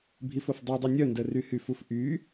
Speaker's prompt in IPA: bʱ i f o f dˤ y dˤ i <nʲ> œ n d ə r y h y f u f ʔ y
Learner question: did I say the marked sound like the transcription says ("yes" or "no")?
yes